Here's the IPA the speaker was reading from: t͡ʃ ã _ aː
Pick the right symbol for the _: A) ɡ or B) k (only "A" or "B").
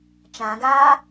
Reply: A